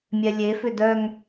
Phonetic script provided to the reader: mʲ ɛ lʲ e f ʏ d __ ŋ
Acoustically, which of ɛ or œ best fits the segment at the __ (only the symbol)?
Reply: œ